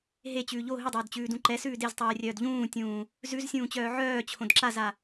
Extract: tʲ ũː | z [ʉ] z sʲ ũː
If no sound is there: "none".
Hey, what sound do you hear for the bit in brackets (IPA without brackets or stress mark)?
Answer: ʉ